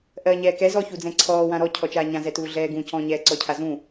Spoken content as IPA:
ʔɜːɲɛːkɛ zɔ çud͡zɛ̃ǀʰɔːwã ɾɔcʰɔ t͡ʃaːɲãzɛtuː ɮɛːɡũ cɔ̃ɲɛː ǀɔcʰazũ

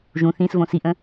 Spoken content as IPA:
ʒũ θĩsvõ siʔə̃

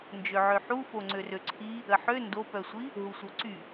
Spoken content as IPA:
nd͡ʒøʕøħu foŋ͡ǀørøǀʰi | əħø ndopœsʷi | ɦusʷœǀy

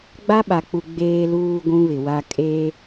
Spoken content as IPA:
ɡ͡ba˦ɓa˨k͡pu˨ ɡ͡beː˨luː˨ ɡʷũ˦βɪ˨wa˦ kʼe˦

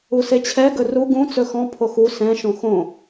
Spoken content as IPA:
uset͡ɕʰɛ ɡɵru ɡũ t͡sɵxɔ̃ pʰoxu sɛ̃ ʃõxõ

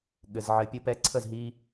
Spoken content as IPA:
ɠɘ˩z ʕɘ˨˩˦pʲə˨˥pɛ˨˥ ǀʰə˥˨zɦi˦

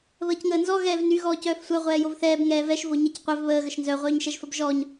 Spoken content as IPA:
βəːcŋəːnzɔ ɣɛːvny ɣɔːcœːfsʷœ ʁʷɛːjovθɛːb ŋɛːvɛʃ voɲɛcqʷœv βəː ɣəʃnzœ ʁʷœːɲʃɛʒfəbʒɔːɲ

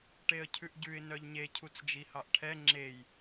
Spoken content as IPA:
ʈeə̯cʰʉʔɟʉɪ̯ nœʎɲe cʰut͡sd͡ʒihɑʔʈʰɛ ŋ͡ǁej

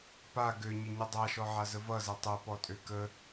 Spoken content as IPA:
pa ɡøɲəɲɘ dˤaʃɔʕazə vʌzɛ tˤɘpɔtʼø kə

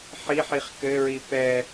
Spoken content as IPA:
ħiħiχ kɘɹi pɛ

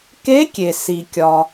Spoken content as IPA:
ke˧˥kʲe˩ si˩kʲɒ˩

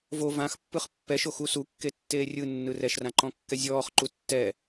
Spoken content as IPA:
vo vãxpːɯχ pːɛʃoxu sukːetːeː rʲɯnːɯ rɛʃrãǃɔ̃kːɛ zʲɔːχǃu tːɛ

